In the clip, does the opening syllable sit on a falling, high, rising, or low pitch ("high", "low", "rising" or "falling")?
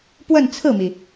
falling